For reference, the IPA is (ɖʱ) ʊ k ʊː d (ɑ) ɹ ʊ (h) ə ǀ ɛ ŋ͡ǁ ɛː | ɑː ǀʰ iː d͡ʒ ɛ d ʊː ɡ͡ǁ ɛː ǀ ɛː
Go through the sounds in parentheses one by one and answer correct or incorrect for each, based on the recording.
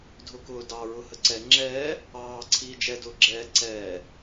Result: incorrect: dʱ, correct, correct

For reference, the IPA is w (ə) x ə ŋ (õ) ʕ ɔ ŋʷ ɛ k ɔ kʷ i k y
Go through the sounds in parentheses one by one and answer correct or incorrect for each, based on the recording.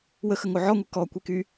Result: correct, incorrect: o

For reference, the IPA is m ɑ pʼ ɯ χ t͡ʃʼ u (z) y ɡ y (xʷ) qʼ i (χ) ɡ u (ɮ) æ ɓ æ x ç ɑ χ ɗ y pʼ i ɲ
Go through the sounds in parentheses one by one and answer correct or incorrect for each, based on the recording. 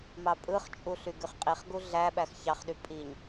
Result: incorrect: ɬ, incorrect: χ, correct, correct

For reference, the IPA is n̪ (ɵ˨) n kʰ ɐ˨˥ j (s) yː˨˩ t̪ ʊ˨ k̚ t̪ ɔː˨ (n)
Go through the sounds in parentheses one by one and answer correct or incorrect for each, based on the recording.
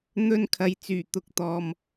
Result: incorrect: ɵ˧, incorrect: t͡s, incorrect: m

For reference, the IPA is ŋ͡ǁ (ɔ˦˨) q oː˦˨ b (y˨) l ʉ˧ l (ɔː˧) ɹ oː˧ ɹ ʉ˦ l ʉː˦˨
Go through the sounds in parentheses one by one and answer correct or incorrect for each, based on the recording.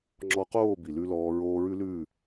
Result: incorrect: ɔ˧, incorrect: i˨, correct

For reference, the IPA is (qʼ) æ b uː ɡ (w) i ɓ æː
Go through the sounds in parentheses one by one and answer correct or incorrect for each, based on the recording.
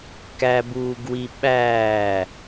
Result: incorrect: k, correct

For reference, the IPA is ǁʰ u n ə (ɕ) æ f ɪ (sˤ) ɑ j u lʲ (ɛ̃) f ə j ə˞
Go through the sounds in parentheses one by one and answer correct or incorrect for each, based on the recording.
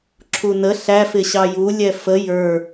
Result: incorrect: ɬ, incorrect: ɕ, incorrect: ɛ

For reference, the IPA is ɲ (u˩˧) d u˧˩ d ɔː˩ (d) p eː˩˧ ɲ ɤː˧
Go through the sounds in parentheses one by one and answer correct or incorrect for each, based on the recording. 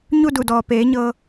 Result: incorrect: u˥˨, incorrect: none

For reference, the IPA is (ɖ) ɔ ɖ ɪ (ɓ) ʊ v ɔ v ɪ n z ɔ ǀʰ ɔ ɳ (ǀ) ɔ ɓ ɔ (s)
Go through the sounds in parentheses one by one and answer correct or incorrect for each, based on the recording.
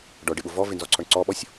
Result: correct, correct, correct, incorrect: sʲ

